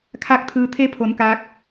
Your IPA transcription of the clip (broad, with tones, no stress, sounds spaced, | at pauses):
kʰ aː˥˨ k̚ t̪ʰ ɯː˧ t̪ʰ e˧˥ pʰ o˩˧ n k aː˧˥ k̚